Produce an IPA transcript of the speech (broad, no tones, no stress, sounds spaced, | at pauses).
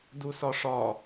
d u s ɒ ʂ ɒ